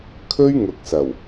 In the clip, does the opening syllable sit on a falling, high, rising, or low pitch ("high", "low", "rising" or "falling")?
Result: high